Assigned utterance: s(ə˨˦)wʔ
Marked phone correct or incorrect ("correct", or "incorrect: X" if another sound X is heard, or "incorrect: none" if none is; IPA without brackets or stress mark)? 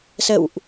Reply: incorrect: ə̰˧˨